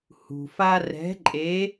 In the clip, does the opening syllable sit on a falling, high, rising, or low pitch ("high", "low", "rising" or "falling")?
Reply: low